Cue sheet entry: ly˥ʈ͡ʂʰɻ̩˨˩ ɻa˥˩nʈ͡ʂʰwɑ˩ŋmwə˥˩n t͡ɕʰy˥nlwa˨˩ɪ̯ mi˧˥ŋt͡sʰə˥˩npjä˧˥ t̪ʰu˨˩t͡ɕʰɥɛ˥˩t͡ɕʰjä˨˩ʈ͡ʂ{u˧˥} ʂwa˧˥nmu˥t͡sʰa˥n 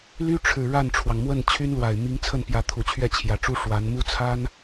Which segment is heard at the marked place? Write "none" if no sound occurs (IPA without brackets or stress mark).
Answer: u˥